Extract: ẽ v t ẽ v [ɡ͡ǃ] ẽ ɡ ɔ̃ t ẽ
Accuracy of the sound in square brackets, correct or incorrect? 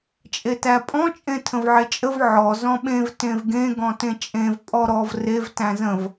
incorrect